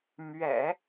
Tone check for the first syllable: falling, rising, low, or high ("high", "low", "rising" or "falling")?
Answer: low